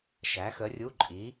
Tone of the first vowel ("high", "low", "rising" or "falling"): rising